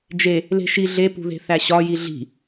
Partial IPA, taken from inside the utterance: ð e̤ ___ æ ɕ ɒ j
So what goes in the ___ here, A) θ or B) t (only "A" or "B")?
A